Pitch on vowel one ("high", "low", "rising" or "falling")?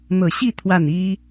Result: low